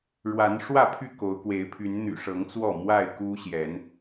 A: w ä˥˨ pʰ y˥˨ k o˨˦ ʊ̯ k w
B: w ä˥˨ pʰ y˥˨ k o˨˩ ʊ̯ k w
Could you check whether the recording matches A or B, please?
A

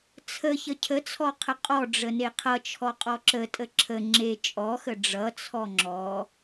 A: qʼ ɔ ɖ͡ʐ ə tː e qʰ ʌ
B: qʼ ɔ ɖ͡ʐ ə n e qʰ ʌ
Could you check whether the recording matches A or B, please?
B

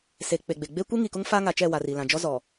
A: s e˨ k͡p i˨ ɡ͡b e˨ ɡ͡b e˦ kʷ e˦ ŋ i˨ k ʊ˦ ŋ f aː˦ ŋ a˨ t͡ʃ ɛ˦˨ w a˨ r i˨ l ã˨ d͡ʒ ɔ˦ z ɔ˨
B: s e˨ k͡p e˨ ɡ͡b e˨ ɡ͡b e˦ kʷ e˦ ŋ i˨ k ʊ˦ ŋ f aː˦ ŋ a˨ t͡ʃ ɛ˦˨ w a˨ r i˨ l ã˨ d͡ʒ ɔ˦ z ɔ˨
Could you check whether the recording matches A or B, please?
B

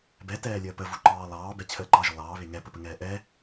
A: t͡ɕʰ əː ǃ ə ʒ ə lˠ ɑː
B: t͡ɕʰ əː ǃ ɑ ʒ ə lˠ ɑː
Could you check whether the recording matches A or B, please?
B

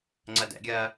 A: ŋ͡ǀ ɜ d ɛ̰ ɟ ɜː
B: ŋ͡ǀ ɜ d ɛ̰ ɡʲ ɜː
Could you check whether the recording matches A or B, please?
B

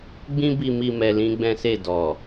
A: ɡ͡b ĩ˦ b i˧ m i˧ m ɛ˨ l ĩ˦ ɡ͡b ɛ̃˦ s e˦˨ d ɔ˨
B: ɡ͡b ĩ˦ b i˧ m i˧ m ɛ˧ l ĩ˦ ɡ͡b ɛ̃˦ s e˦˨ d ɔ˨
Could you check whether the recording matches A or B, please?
B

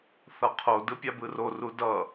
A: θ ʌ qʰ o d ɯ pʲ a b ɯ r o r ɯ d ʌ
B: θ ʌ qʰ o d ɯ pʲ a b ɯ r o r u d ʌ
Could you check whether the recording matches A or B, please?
B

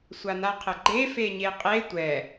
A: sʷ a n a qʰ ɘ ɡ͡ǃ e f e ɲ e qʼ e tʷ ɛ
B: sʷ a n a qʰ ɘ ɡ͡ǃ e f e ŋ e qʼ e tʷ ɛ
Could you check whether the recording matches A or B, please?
A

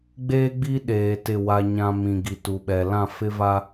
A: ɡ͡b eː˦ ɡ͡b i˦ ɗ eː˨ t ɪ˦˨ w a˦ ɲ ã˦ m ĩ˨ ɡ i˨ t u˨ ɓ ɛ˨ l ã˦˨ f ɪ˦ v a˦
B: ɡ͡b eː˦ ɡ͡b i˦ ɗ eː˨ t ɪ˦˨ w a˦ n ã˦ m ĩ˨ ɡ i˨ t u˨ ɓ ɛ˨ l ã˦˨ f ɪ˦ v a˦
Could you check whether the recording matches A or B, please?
A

